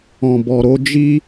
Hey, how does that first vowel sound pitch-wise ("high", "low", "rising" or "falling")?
low